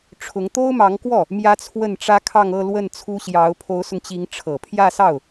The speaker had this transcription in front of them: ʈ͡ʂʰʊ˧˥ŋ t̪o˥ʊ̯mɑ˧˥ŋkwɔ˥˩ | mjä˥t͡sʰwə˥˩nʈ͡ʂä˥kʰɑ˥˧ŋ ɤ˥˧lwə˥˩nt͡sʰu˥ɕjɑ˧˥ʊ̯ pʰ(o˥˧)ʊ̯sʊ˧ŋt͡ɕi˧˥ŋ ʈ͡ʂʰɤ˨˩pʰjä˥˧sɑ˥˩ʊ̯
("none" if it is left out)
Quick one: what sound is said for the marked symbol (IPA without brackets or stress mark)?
o˧˥